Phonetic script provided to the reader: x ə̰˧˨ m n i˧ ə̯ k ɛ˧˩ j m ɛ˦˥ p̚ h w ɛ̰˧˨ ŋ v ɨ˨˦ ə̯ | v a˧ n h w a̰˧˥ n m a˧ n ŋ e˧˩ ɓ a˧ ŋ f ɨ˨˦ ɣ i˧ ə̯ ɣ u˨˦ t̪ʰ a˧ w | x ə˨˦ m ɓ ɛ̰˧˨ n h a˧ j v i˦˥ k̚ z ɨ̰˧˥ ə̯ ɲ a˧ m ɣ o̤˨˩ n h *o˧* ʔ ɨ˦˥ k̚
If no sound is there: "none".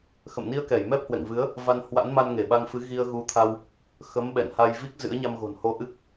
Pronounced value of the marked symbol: o˧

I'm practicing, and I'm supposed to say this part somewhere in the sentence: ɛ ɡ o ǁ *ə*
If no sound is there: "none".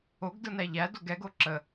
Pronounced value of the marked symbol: ə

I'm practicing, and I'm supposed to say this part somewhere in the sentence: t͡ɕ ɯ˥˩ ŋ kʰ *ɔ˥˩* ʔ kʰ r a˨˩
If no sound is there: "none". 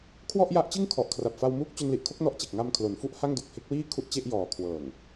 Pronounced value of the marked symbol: ɔ˨˩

